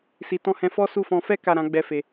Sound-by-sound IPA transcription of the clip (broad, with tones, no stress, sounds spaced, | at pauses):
s i˨ t ɔ̃˧ h ɛ̃˧ f ɔ˦ s u˦˨ f ɔ̃˧ f ɛ˦ k a˦˨ ɾ ã˨˦ ɡ͡b ɛ˦ f e˧